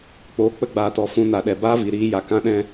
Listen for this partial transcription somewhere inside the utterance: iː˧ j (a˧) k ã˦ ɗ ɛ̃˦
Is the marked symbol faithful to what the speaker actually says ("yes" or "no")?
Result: no